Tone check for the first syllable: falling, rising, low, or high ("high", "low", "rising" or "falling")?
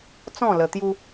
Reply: falling